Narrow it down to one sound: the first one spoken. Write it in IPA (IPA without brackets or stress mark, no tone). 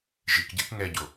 ʒ